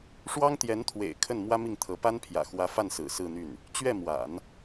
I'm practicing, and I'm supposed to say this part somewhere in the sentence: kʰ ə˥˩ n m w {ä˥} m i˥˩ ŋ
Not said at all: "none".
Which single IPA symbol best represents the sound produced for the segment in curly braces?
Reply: ä˥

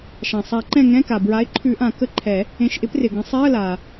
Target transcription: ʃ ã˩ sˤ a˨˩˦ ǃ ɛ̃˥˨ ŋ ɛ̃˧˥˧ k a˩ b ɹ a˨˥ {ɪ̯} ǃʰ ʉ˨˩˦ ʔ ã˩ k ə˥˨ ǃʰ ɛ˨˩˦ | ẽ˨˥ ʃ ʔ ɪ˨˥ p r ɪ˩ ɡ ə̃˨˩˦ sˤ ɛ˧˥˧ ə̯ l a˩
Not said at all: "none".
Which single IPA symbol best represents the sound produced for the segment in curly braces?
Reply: ɪ̯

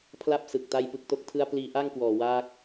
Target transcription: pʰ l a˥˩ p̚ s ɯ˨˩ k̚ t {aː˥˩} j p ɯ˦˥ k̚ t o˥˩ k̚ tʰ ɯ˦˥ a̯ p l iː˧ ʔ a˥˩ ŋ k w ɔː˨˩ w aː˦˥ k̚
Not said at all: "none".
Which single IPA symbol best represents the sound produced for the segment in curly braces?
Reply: a˥˩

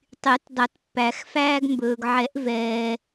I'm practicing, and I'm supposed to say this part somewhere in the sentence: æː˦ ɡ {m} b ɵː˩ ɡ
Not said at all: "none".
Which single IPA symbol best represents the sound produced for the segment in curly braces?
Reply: m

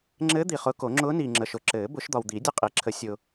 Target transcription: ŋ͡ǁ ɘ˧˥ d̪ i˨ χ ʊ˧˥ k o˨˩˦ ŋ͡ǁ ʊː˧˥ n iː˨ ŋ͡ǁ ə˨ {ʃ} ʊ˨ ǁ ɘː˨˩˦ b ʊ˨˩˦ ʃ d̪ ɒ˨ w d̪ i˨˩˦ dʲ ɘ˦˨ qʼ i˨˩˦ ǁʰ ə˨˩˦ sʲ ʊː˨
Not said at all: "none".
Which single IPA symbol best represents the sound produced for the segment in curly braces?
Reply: ʃ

